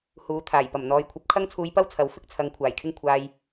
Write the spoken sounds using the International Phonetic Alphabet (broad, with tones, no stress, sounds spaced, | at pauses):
h uː˨˥ t̪ʰ aː˨˩ j p ɐ˨˩ m n̪ ɔː˨˧ j kʷʰ ɐ˨˥ p̚ kʰ ɐ˥ ŋ t͡sʰ uː˧ j p ɐ˥ w t͡sʰ ɐ˨˥ w f ɪ˥ k̚ t͡sʰ ɐ˨˧ ŋ kʷʰ aː˨˩ j kʰ ɪ˥ ŋ kʷʰ aː˧ j